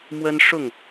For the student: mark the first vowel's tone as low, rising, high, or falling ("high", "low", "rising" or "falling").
high